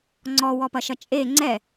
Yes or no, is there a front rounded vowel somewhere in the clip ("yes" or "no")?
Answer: no